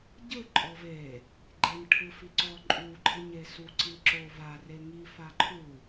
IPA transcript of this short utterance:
ɟ ɯ ǃʼ ɔ v e | ɡ͡ǃ e n ʈʰ ɯ f i ǀ ɔ ǃʼ u ɡ͡ǃ ɯ ɲ e s u ǀ i ǁ o v a r e ŋ i f a ǃʰ u

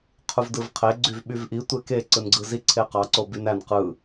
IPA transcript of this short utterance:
qʰ u v d ɯ v qʰ e ɡ͡ǀ y v ɓ y v ʔ i tʷ e k e ǀ ɯ n ɡ͡ǀ ɯ z i ǀʰ e q ɑ ǀ o b y n æ n q ɯ

